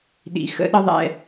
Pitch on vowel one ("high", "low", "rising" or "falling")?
low